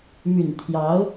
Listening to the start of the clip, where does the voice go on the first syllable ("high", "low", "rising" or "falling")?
low